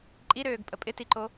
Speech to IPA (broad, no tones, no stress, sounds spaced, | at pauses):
ǃʼ i ɾ øː ɡ pʼ ə pʼ ɪ t i ǃ o